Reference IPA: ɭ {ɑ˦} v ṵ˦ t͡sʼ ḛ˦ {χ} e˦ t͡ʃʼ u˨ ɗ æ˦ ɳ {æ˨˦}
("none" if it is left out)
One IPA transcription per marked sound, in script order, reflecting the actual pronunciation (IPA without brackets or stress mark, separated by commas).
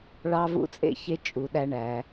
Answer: ɑ˦, ç, æ˨˦